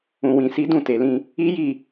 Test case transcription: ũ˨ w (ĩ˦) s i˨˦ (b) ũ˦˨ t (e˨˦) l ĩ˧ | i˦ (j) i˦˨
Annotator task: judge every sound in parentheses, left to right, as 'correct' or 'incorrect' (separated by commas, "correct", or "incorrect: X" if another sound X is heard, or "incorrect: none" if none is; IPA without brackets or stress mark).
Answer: incorrect: ĩ˨, incorrect: d, incorrect: e˨, correct